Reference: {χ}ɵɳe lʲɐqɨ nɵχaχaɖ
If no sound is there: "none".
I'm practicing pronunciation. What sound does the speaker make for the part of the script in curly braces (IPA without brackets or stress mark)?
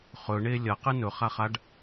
χ